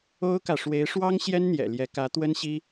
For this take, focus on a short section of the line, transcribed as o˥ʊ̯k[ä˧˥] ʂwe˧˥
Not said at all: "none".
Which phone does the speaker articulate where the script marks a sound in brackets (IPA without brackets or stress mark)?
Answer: ä˨